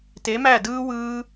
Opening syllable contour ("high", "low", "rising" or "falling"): rising